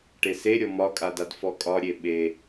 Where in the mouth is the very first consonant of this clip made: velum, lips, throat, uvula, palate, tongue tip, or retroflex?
retroflex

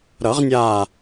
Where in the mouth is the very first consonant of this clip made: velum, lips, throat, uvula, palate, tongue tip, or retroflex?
tongue tip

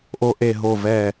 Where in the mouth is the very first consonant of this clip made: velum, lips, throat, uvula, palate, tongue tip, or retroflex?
throat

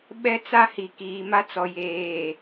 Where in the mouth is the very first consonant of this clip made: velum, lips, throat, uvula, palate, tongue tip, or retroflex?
lips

